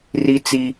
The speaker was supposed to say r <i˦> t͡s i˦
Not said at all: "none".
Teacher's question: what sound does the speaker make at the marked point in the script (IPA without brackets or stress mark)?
i˦